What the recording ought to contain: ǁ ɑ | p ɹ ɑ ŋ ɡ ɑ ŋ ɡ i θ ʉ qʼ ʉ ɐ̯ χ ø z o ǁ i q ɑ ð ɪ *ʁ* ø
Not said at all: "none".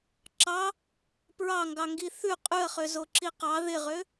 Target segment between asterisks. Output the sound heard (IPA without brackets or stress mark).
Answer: ʁ